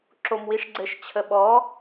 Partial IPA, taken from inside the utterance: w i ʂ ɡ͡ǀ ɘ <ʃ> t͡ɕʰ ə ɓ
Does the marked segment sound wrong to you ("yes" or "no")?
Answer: no